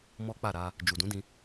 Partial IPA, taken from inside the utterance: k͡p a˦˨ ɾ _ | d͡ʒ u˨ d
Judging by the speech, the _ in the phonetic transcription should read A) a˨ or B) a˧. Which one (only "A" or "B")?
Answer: B